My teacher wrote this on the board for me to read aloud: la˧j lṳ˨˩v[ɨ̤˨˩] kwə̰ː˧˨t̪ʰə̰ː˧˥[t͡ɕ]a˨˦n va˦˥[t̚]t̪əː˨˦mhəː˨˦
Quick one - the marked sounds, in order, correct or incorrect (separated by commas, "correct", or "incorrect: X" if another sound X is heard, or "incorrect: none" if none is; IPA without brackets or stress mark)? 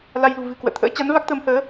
correct, correct, incorrect: k̚